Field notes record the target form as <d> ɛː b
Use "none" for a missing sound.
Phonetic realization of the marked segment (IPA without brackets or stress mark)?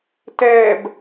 t